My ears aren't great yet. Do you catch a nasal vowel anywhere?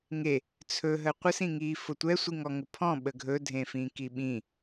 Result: yes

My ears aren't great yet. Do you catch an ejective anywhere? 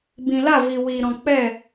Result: no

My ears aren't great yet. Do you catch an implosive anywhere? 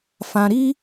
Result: no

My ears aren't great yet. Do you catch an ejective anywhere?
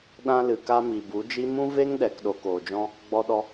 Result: no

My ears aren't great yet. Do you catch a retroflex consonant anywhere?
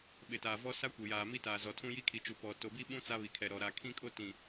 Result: no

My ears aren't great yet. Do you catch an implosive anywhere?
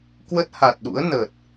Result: yes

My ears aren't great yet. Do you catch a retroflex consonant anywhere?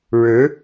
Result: yes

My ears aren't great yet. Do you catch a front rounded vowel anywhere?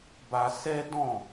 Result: no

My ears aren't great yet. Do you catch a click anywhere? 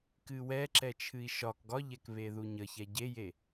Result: yes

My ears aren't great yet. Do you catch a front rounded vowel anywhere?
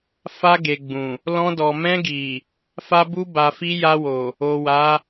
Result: no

